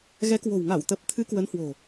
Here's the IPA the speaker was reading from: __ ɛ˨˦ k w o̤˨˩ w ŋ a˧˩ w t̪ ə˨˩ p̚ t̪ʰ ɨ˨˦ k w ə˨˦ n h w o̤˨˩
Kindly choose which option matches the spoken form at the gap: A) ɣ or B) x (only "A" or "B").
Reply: A